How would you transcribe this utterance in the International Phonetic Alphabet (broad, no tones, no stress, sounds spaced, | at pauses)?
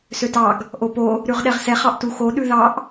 s ø t ɑ ɡ | ʔ o p o | ɾ ʉ ʁ ɗ ɛ ʁ s ɛ χ ɑ ʔ t u x o ɗ ʉ ð ɑ ʔ